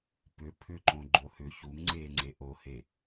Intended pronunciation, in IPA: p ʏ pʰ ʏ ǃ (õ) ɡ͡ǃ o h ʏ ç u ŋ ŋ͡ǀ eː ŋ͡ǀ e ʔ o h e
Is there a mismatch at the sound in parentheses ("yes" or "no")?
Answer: no